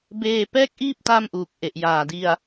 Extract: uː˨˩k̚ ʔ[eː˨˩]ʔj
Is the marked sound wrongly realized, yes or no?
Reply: yes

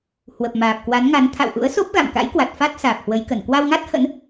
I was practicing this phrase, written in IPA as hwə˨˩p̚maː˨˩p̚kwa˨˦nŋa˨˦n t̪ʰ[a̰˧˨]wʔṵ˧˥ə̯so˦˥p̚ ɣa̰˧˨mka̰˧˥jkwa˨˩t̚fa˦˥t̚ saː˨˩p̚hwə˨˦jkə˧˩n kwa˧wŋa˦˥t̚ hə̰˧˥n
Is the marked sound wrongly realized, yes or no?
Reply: no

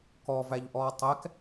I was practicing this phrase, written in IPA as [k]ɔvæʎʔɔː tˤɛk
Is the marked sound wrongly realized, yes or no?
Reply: no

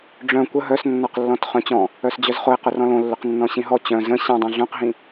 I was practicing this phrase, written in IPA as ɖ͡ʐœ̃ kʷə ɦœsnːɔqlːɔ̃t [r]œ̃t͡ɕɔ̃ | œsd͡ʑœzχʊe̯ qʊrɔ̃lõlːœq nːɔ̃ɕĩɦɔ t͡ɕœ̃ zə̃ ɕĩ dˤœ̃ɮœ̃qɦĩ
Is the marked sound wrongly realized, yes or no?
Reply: yes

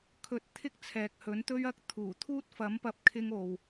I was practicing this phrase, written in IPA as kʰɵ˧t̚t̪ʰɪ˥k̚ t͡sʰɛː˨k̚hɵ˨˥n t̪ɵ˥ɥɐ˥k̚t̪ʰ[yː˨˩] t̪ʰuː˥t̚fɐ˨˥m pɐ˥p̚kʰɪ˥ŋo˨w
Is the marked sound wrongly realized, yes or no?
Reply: yes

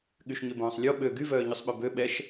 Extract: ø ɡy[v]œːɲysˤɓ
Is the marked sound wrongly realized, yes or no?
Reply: no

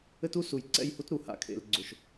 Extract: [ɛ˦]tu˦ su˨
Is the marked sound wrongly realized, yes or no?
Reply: yes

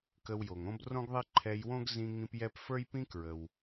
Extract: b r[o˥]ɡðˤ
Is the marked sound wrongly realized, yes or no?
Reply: yes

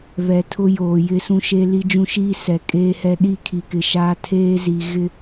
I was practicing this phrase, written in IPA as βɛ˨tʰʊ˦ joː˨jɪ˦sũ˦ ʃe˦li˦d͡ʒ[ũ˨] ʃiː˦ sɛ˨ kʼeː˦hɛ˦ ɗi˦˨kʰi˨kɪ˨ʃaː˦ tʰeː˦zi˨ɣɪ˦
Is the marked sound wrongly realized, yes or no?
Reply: yes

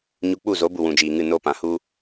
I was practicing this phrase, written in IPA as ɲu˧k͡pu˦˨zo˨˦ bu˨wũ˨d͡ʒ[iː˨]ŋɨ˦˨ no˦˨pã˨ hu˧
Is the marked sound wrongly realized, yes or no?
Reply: no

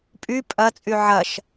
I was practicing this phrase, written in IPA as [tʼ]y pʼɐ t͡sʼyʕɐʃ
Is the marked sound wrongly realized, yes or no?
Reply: yes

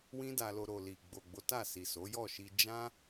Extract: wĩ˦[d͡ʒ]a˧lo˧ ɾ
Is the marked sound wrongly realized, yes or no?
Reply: yes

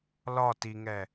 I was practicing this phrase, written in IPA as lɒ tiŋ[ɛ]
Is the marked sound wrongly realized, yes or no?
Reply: no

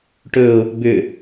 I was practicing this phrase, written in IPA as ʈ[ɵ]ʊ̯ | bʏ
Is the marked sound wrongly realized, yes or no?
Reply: no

